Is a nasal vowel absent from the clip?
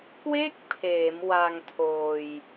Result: yes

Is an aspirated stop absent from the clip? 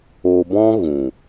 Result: yes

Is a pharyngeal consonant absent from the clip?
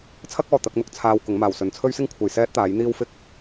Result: yes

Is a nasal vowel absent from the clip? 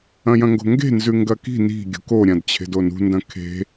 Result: no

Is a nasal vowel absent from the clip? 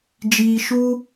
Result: yes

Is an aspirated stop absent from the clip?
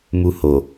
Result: yes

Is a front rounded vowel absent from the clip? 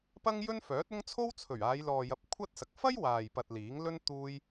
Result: no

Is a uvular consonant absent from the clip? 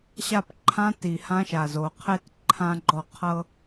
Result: no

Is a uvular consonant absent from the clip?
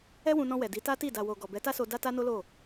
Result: yes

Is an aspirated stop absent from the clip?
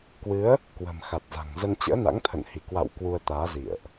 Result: no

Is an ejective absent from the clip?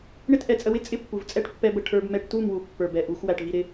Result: no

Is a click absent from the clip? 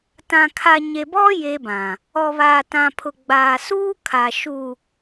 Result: yes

